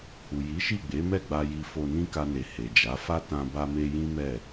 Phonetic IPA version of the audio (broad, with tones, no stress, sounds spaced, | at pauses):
h u˨ j i˨˦ ʃ i˦˨ ɡ͡b e˨˦ m ɛ˦˨ ɡ͡b a˧ j i˧ f o˧ n ĩ˦ k a˧ n e˨ h e˨ d͡ʒ a˨˦ f a˦ t ã˧ b a˧ m e˧ j ĩ˦ m ɛ˦˨